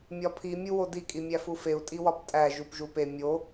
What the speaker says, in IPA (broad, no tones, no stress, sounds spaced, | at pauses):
mʲ ɒ pʰ i mʲ u w o d i kʼ i mʲ æ f u f e u̯ tʼ i w ɒ p tʼ æ ʒ u p ʒ u p e mʲ o